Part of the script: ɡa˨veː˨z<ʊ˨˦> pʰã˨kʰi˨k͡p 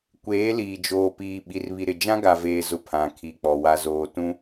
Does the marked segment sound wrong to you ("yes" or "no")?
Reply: yes